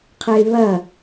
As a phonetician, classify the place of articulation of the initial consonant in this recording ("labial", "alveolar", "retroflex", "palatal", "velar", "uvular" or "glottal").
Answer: uvular